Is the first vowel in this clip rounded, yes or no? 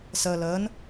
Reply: no